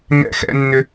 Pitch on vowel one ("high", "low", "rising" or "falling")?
high